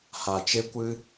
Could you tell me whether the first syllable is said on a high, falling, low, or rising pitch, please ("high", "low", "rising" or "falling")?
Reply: low